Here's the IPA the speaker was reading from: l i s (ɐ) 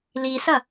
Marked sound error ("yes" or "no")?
no